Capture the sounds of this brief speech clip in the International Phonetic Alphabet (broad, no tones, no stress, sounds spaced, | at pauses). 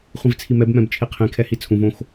χʷ ĩ v t͡sʰ i m ɛ b m ɛ̃ b t͡ʃʰ i qʰ ĩ kʰ ɛ h i t͡sʰ ũ v õ x